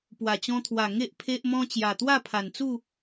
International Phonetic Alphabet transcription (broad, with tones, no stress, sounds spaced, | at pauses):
p w a˨˩ t͡ɕ ɔ̃˧ t̪ʰ w a˨˩ ŋ e˦ ʔ pʰ e˦ ʔ m ɔ̃˦ t͡ɕ j a˨˩ t̪ w a˥˧ pʰ a˨˩ n t͡s u˥˧